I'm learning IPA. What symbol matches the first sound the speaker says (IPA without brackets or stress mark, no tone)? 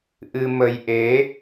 ʔ